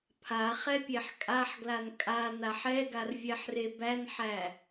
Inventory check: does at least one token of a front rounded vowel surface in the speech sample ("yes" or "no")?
no